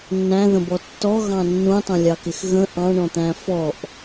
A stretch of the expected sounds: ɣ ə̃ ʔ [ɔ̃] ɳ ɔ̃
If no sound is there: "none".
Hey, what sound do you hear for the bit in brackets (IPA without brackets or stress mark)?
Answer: ɑ̃